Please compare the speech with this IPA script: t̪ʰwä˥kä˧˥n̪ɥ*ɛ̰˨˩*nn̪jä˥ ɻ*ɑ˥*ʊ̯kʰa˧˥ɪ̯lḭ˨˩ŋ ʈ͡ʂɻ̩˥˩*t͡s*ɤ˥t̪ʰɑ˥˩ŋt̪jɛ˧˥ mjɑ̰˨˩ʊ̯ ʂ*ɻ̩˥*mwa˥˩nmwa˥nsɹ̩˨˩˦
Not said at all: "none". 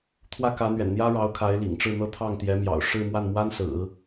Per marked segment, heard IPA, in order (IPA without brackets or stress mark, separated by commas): ɛ̰˨˩, ɑ˧˥, n̪, ɻ̩˥˧